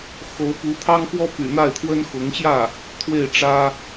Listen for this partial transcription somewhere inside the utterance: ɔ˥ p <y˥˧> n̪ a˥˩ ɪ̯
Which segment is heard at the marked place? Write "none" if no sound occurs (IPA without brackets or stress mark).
y̰˨˩